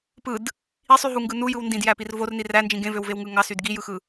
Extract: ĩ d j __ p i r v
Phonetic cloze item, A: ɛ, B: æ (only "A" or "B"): B